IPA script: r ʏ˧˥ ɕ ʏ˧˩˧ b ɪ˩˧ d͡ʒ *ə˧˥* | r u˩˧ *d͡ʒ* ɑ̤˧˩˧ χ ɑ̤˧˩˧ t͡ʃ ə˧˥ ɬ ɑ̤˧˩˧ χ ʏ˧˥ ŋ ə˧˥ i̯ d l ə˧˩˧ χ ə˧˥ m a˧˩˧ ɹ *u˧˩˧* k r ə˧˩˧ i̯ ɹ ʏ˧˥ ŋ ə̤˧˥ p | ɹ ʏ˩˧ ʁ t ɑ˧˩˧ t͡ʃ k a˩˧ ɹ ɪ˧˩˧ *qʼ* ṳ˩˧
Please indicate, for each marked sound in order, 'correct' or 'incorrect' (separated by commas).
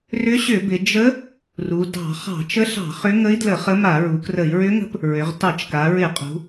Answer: correct, incorrect, incorrect, correct